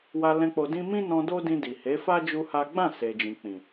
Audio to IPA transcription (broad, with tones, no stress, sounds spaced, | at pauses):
w a˧ l ɛ̃˧ k͡p o˨ d ĩ˧ m ĩ˦ n ɔ̃˧ d o˦ d ĩ˧ d i˨ h e˨˦ f a˦ d͡ʒ u˦ h a˦ ɡ͡b ã˦˨ s e˨ d͡ʒ ĩ˨ k͡p ĩ˨